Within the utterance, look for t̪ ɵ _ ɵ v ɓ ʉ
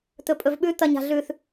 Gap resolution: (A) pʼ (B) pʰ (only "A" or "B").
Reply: A